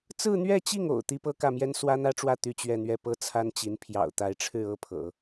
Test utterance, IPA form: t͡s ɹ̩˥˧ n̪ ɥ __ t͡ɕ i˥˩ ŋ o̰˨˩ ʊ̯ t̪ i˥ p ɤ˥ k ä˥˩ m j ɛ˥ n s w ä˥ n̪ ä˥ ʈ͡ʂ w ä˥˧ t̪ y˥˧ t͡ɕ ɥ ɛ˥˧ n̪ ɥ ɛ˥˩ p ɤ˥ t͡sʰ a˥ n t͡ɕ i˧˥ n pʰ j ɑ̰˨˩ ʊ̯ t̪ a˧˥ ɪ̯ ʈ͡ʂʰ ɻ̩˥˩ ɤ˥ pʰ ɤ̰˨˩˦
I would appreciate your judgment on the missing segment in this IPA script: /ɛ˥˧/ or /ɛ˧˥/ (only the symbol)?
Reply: ɛ˥˧